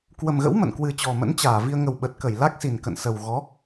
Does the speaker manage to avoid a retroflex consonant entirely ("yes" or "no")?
yes